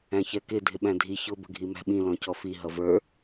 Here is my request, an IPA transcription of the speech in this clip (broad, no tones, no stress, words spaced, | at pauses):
æ̃çɛkɪ dʱɪɓæ̃dʱi çʊ bə̤ɡʱimæ̤ɓĩ lɔ̃cɔfi ɦʌvə˞